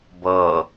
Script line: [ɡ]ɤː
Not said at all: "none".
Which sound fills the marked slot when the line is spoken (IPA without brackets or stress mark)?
b